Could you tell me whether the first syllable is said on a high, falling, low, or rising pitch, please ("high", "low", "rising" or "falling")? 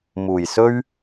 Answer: low